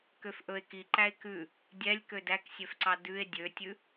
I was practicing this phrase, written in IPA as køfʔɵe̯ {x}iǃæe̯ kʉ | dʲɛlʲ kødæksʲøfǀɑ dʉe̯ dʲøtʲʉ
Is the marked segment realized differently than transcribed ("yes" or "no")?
yes